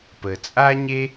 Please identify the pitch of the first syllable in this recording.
low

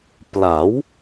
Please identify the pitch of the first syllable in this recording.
rising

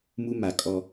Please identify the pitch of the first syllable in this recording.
high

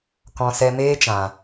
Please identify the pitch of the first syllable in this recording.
low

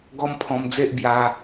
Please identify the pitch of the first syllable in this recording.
high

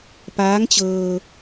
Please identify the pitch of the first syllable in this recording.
rising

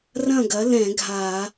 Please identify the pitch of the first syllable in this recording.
falling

